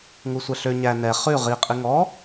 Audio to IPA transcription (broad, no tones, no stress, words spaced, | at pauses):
ŋusʷɛɬø ɲæ nɛ χʉ ʁi qʼiŋɔ